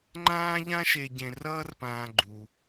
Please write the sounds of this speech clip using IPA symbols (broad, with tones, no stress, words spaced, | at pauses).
ŋ͡ǃãː˥ʎã˥ʃe˧ ɟẽ˧rʌː˥rpãː˧ ɡ͡ǃu˩